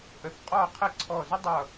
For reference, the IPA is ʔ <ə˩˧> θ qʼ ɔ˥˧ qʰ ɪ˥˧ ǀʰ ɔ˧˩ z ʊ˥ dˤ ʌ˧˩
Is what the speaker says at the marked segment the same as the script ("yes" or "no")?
no